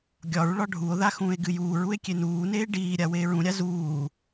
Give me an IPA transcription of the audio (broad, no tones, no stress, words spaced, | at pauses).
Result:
ɡʲɒɹ ɭɒɖʱuo̯ða xũːe̯ɡɨjuːɹue̯ kʲenuːneː ɖiːɾʲa weːɹũɾʲa zuː